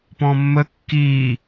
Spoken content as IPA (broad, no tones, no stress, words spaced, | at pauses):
pɔ̃mːə kːiː